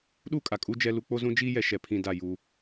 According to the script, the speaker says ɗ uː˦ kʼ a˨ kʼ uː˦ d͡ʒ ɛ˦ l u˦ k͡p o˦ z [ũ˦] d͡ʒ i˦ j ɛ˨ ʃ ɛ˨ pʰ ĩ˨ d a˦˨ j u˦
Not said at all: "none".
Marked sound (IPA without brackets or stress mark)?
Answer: ũ˦